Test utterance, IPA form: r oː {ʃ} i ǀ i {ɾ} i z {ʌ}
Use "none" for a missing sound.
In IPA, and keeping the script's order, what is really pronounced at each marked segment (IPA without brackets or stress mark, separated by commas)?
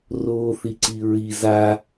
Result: θ, ɹ, a